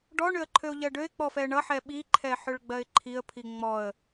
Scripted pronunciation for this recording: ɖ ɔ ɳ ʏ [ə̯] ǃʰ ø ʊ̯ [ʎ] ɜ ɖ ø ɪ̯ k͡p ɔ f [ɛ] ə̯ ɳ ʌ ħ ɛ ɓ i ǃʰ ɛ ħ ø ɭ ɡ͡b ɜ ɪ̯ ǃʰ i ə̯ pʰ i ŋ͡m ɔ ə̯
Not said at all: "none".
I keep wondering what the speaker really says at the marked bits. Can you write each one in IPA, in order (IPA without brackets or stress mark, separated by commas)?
ə̯, ʎ, ɛ